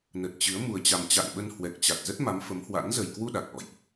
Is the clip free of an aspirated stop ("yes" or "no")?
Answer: yes